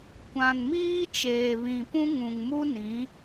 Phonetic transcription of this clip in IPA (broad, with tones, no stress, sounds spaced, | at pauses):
kʷ ã˨ n m iː˦ t͡ʃ eː˨ β ĩ˨ p ũ˦ ŋ ũ˨ ŋ m u˦ n ĩ˨˦